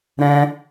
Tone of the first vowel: high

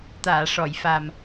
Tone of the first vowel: low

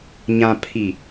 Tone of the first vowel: low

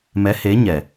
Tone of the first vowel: rising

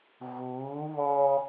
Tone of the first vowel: rising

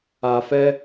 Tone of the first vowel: low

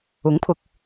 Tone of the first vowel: rising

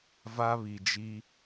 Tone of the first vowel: high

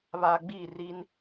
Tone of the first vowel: low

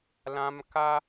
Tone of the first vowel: high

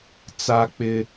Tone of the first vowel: high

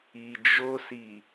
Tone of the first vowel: low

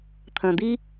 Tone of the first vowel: low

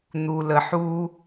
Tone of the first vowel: low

